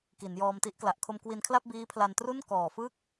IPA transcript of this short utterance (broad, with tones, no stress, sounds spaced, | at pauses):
k i˩˦ n j ɔː˧ m t i˦˥ ʔ k l a˨˩ ʔ kʰ o˧ m k w i˧ n kʰ l a˥˩ p̚ b iː˦˥ pʰ l a˧ n t r u˥˩ n k ɔː˨˩ f ɯ˥˩ k̚